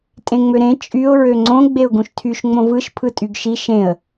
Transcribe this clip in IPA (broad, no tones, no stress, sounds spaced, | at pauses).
tʼ ẽ ŋ͡m ø ɾ ẽ t͡ʃʼ y ʊ̯ ɹ ø ŋ͡ǀ õ ɡ͡b e ʊ̯ ɡ ũ ʃ tʰ y ʃ ŋ͡m õ v ɯ ʃ pʰ ɯ tʼ y ɡ ʃ i ʃ ẽ ə̯